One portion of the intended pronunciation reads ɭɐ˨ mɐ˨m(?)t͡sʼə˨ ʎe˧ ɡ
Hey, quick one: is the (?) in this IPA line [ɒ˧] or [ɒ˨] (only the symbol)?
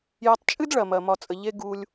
ɒ˨